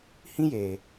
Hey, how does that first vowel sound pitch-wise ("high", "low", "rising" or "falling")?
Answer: high